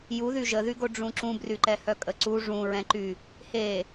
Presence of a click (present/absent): present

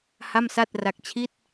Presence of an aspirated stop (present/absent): present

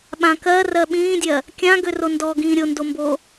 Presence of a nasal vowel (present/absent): present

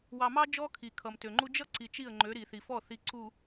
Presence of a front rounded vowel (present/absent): present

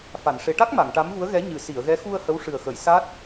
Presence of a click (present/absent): absent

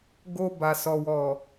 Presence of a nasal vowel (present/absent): absent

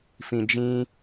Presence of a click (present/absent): absent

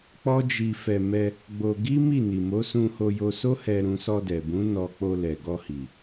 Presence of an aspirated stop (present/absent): absent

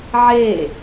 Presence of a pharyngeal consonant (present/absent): present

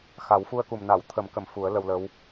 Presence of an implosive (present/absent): absent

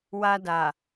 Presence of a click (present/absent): absent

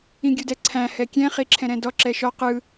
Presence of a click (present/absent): present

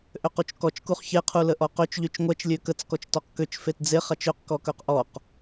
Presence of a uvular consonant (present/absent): present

